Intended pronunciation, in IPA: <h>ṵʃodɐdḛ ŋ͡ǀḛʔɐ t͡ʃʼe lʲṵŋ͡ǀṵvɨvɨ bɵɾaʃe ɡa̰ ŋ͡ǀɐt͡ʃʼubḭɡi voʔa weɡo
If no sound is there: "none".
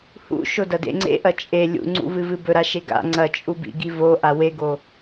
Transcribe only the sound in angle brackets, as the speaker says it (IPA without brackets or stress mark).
h